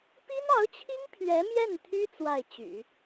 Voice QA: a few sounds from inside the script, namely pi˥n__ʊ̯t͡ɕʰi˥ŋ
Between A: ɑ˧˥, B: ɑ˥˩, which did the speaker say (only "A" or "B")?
A